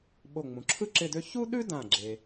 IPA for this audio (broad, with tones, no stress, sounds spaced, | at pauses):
ɓ o˧˩ ŋ͡m ũ˩˧ ǁʰ ɯ˥ ǁ ɪ˥˧ d ø˥ ç u˥ ɗ ʉ˥ d ã˧˩ ɡ͡ǁ e˧